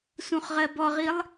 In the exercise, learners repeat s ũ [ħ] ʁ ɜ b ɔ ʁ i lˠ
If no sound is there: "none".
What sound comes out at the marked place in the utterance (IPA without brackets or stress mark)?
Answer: χ